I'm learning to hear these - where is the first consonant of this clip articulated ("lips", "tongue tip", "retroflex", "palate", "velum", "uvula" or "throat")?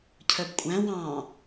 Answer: palate